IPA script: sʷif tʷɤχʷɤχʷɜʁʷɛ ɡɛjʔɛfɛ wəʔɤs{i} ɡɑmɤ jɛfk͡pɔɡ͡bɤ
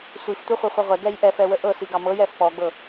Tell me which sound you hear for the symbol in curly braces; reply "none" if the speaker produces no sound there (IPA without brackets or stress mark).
i